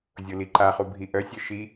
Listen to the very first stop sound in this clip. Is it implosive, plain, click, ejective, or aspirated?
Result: click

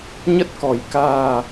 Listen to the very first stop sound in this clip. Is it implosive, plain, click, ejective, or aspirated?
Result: plain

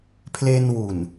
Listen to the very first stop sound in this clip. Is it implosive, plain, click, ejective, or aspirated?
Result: aspirated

